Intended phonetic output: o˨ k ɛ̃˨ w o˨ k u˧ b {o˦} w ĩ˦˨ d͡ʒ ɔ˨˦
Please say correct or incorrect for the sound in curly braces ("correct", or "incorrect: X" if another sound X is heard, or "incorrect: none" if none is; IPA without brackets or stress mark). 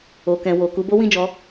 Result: correct